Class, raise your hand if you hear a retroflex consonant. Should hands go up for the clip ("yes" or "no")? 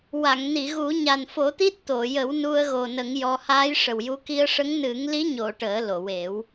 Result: yes